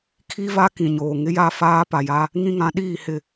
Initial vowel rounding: unrounded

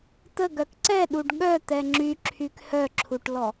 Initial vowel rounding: unrounded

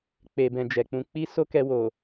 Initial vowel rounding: unrounded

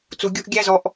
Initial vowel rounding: rounded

